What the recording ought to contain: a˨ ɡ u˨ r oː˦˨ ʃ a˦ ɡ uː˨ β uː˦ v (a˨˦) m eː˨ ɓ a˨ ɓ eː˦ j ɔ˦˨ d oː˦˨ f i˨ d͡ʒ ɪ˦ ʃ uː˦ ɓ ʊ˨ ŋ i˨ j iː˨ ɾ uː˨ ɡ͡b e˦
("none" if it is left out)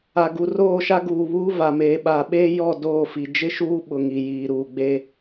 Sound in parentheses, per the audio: a˨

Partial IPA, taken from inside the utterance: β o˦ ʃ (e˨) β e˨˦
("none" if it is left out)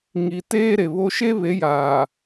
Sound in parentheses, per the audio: e˦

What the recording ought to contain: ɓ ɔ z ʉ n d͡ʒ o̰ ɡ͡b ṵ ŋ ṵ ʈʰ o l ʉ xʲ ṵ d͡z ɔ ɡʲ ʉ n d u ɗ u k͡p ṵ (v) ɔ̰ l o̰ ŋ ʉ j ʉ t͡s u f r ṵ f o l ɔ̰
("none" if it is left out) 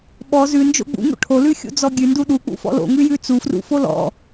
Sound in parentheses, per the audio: f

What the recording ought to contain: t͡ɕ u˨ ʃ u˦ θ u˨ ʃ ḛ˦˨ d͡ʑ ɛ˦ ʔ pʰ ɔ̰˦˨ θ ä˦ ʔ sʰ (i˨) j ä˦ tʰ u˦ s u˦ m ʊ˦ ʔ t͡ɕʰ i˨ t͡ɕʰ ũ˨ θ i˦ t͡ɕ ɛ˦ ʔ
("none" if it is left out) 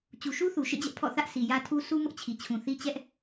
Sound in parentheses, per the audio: i˨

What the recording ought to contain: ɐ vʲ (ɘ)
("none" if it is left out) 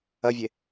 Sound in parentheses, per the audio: e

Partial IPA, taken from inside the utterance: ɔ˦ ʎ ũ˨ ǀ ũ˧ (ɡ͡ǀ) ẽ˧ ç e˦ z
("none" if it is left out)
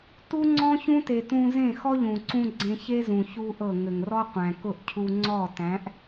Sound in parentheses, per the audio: ɡ͡ǀ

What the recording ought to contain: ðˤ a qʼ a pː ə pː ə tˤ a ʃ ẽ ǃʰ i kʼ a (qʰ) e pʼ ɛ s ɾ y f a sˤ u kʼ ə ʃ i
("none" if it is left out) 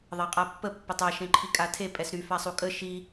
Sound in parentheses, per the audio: tʰ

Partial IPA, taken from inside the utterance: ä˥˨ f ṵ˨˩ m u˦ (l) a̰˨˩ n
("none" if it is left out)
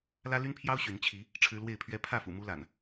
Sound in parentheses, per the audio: l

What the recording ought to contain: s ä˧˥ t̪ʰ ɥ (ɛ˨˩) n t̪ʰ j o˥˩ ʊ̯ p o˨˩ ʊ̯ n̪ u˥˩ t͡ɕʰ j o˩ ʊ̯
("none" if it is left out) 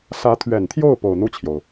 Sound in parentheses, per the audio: ɛ˨˩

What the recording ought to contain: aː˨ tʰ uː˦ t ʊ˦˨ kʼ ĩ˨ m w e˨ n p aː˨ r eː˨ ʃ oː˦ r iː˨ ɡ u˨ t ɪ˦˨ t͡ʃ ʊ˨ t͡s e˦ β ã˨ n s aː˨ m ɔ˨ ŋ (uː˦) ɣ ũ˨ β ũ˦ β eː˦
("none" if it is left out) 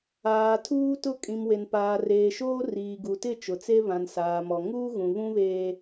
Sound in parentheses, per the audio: uː˦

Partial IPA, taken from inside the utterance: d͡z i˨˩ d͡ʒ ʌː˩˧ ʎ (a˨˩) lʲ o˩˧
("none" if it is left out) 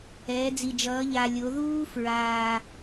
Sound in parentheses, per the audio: a˨˩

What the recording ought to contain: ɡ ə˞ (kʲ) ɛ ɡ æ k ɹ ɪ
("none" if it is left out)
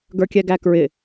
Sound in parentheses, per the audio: kʲ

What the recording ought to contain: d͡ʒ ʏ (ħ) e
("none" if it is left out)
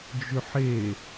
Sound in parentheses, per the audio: ħ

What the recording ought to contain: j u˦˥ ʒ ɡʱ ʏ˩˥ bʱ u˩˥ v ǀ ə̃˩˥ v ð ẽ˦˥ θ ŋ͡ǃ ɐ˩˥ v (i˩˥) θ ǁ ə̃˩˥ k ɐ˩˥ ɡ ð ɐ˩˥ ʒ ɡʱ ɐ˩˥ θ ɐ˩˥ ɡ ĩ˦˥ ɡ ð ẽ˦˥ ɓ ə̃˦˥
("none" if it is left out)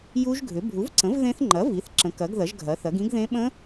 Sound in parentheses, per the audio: i˩˥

